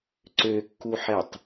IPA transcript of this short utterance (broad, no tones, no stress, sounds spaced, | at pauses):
ǀ ø kː u ħ ɛ tˤ